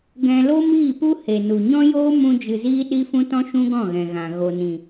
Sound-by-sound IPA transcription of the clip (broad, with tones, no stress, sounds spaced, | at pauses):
ɡ ɛ̃˧ l o˦ m iː˦˨ p u˦ h e˨ n u˨ ɲ ɔ̃˦ j oː˦ m ũ˦ d͡ʒ ɨ˧ z iː˦ ɗ i˦ f ũ˦ t ɔ̃˦ ʃ ũ˦ ɡ ɔ̃˦˨ ɣ ɛ̃˨ ɣ ã˨ ɣ o˨ n ĩ˨